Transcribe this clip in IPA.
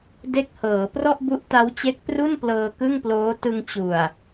de˥˩k̚hɤː˩˦ prɔ˥˩ʔbu˦˥ʔ ta˦˥wt͡ɕe˦˥k̚pru˥˩nplɤː˧ kɯ˥˩ŋploː˦˥ tɯ˧ŋt͡ɕu˨˩a̯

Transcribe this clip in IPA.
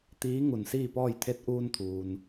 t̪iː˧˥ ŋu˧˩nsiː˥˨pɔː˥˨j t̪ʰe˧˥t̚ʔuː˧nt̪ʰuː˩n

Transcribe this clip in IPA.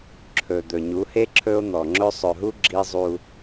ǁʰɵ˨ d̪ɵ˨ɲu˨˦he˦ ǁʰɵ˦o̯n̪ɔ˨ŋ͡ǁɵ˦ sˤɵ˨ɦu˦ ɡ͡ǁi˦zˤu˦

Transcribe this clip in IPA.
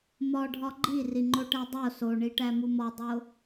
mɒɖʱɒ ɡ͡ǃiriŋ͡ǃoʈæ dˤo soɳiʈæmu mɒdˤo

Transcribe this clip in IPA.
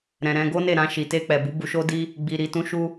ɾɛ̃˨ɾɛ̃˧ ɡo˦ne˦˨ɾã˧ ʃi˨te˧k͡pɛ˨bu˨˦ bu˧ʃo˦di˦ | ɡ͡bi˨ɾi˨tũ˨˦ ʃu˧

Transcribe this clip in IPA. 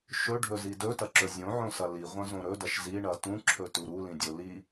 ʃɵɖʱɵzi dɵtɐǁɵ zʲõʕõsɐ liʁʷɐ̃zõ ɾɵdɐʃ ziɳɐ tũǁʰɵtu ɾulĩdʲo li

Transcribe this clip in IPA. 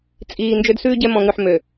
t͡sʼiː˨ nd͡ʒø˦dsʉː˦ɟɛ˦ mɔ̃˨ŋʉ˨ħ mø˨

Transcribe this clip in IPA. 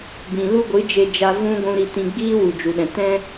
bĩ˨ lu˦ɡʷɨ˨˦d͡ʒe˧d͡ʒa˧ vũ˧ ɡʷũ˧ɾi˧ tĩ˧ ɡ͡biː˦wu˨d͡ʒu˨ɗɛ̃˨ tɛ̃˦

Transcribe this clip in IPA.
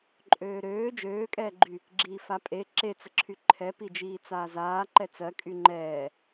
ǃʼøːɾøː d͡ʒøːkʼɛːɡ͡ǃy | ɡ͡ǁiːfapʼe ǁet͡səǁʰy ǃʰɛpid͡ʒiː t͡saːzaː ǃɛt͡sɜkʼy ŋ͡ǃɛː

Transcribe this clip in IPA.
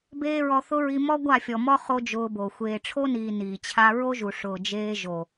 beː˦ɹɔ˧ θʊ˦ɹi˧ mɔ˦ɡʷa˦˨fʲɔ˨mɔ˦ χo˦d͡ʒʊː˧bo˨ xʷeː˨ʈ͡ʂʰo˦niː˨ niː˨t͡ɕʰa˦ ɹo˦ʒu˨ ʂʊː˨d͡ʒeː˧ ʒo˨

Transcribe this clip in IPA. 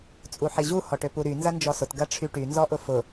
t͡sʼuħiʑu hɔʈøpuɾy nzɐnd͡ʒɔsʊt ɡɐʈ͡ʂʰyʈy nzɔʔʊfʊ

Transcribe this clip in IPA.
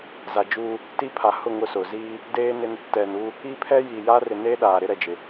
za˨d͡ʒu˦ | ti˦pʰa˨ hʊ˦˨ ŋʊ˦sʊ˨ ziː˦ | deː˦nɪ˦n | tɛ˨nu˦ | i˦pʰɛ˦ji˨ja˦ rɪ˨ne˦ ɗaː˨ɾɪ˦ ɾɛ˨d͡ʒɪ˨

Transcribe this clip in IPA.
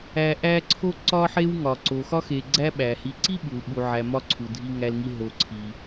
æ˨ʔæ˦ǀʰo˥ ǀɒ˦ħe˦wŋɒ˩ ǀo˩ xɒ˥xe˨ ɡ͡ǀæ˦ ɓæ˩hi˨ǀi˥ɓu˩l ɓu˨ʕæ˨ mɒ˥ǀʰu˩ dʱi˦ŋæ˦lŋi˦ ɦo˨ǀʰi˩

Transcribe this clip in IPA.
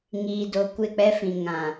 ŋiː˨do˨ kʷɪ˦˨k͡pɛ˦fĩ˨ ŋã˨

